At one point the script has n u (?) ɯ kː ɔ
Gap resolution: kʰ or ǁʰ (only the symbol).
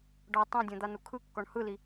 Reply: kʰ